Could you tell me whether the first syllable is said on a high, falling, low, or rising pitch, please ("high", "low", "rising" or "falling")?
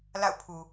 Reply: falling